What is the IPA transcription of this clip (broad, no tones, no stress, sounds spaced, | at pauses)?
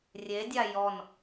rʲ e dʲ a j ɔ n